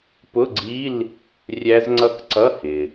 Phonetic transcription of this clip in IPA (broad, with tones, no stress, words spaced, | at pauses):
pʊ˧˥˧ɡ͡ǀi˧˥˧l | rʲæ˦˥zŋ͡ǀʌ˥˨k ǀʌ˧˥˧hɪ˩